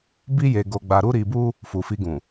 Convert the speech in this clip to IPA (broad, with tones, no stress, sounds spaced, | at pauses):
b i˦ j e˧ ɡ o˧ ɡ͡b a˧ ɾ u˦ ɾ i˧ b u˦ | f u˨ f i˧ ɡ ũ˨